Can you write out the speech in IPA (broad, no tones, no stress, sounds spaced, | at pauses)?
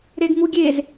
ɾ e ɡ ŋ u ɡʲ e z